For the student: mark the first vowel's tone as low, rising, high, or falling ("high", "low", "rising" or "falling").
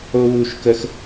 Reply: high